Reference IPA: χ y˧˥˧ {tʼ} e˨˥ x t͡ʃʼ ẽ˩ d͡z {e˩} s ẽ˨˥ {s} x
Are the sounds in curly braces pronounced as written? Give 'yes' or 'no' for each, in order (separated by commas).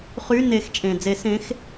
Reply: no, no, no